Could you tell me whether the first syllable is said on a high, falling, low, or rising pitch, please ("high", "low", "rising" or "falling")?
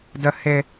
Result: high